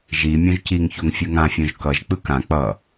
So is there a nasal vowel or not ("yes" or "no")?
yes